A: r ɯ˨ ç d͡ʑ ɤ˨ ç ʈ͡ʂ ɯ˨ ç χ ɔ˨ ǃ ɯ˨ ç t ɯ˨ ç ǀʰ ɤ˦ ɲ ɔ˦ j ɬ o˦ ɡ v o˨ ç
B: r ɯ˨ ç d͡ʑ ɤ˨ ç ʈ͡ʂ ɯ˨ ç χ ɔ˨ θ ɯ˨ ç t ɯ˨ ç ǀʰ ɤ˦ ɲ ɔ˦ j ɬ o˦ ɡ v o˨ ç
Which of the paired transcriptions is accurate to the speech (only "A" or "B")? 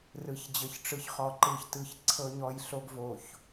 A